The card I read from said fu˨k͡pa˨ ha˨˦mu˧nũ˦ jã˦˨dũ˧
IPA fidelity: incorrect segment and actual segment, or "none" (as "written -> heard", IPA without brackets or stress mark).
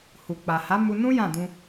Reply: f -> h